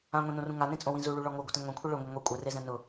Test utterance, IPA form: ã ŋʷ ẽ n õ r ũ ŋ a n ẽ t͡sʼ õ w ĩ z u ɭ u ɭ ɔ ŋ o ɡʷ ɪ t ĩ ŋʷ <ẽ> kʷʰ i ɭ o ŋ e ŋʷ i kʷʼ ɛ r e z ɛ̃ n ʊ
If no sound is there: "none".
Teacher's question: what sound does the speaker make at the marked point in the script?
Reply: ẽ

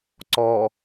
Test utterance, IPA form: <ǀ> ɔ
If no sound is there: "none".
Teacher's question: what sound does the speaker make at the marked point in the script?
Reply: ǀ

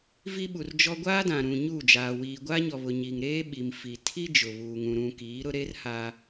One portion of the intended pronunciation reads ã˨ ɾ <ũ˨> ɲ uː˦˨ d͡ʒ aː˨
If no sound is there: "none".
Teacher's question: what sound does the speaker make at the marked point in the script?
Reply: ũ˨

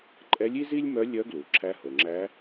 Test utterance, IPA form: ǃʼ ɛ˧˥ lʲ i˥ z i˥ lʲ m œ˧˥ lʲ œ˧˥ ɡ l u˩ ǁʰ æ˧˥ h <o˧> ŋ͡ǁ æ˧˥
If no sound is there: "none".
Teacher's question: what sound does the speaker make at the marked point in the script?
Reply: o˩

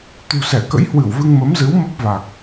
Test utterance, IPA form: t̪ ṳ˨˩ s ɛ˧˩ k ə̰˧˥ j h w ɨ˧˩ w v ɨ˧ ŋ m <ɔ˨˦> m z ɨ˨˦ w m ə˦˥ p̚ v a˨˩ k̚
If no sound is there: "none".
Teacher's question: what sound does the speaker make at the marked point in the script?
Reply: ə˨˦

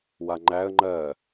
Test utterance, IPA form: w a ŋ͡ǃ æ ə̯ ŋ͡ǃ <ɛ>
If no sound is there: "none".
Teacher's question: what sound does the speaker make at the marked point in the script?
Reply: ɜ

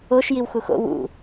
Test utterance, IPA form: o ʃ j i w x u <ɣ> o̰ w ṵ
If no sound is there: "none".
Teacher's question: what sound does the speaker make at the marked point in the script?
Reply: x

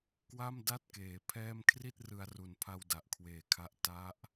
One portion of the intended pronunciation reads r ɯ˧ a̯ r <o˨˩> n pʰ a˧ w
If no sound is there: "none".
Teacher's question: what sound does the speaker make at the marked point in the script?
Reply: u˨˩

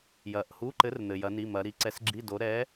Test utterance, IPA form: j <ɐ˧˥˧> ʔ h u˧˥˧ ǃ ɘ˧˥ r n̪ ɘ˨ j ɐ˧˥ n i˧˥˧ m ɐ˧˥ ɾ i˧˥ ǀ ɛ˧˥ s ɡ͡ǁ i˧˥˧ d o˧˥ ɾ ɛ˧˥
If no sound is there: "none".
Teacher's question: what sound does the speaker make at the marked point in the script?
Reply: ɐ˨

